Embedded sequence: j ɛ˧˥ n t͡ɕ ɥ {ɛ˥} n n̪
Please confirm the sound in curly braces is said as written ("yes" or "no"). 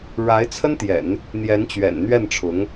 no